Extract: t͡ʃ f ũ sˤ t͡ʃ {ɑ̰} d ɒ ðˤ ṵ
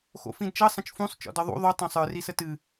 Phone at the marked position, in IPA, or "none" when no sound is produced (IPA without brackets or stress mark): ɔ̰